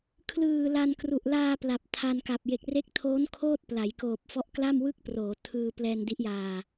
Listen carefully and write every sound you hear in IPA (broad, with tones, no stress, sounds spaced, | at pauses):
kʰ l ɯː˨˩ l a˧ n k r u˨˩ ʔ l aː˧ p l a˨˩ p̚ tʰ a˧ n k a˨˩ p̚ j e˨˩ k̚ r e˦˥ k̚ tʰ oː˦˥ n kʰ oː˥˩ t̚ p l a˩˦ j k oː˨˩ p̚ f ɔ˦˥ ʔ k l a˥˩ m w ɯ˥˩ k̚ p r oː˩˦ tʰ ɯː˧ p l ɛː˧ n d i˦˥ ʔ j aː˧